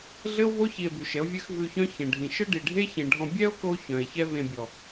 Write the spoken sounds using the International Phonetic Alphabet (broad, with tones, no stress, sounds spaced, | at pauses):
ɮ ɘ˦ o̯ v o˦ ç i˧ e̯ b ʉ˨ ʃ ɛ˨˦ o̯ vʲ ɘ˦ x v ʉ˧ ç œ̃˦ ç ɛ̃˨ ɖʱ ĩ˨ ʃ ɘ˦ ɖ i˨ ɖʱ e˦ ç ẽ˨ ɖʱ ɔ̃˧ bʲ ɛ˦ o̯ k o˧ ç œ̃˨ e̯ ç ɛ˦ v ẽ˧ bʲ ɔ˨